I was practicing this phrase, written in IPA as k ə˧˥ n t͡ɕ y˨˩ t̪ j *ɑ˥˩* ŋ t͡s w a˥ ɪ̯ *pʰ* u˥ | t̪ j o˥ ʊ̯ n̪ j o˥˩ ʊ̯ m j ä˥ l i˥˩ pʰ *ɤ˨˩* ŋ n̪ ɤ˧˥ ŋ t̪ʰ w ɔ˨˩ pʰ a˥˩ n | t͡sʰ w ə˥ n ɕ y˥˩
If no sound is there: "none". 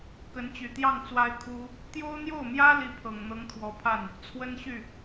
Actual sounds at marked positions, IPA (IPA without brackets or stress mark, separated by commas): ɑ˥˩, kʰ, ɤ˨˩